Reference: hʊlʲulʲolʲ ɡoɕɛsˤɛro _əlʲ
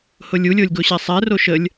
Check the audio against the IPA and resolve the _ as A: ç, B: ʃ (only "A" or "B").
B